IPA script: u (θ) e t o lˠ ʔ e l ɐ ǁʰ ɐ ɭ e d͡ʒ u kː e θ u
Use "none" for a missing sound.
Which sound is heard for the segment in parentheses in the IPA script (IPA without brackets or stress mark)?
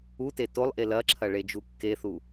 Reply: t